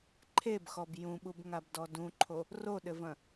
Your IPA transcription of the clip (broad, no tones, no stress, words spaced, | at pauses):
ǃʰebxɔb jũɓubŋabdɔ dũǃʰo | roɗɘvɐ̃